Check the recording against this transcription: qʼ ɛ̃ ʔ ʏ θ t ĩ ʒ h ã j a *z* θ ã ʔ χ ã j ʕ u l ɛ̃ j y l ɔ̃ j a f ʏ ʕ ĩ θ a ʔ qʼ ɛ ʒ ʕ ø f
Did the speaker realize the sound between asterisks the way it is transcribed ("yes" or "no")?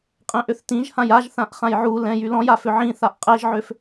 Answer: no